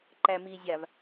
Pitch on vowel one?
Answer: low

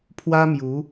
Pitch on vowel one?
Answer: high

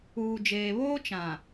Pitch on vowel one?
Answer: low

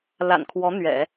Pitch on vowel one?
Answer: low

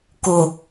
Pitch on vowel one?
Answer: low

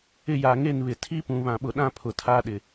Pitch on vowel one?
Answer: falling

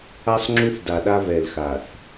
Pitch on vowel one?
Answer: high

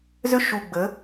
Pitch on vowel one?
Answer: rising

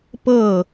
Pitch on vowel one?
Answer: falling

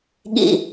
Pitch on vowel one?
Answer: low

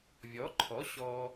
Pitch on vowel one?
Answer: rising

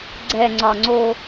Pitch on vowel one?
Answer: low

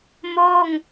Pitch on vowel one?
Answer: falling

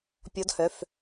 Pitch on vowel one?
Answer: rising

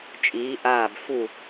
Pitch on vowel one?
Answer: rising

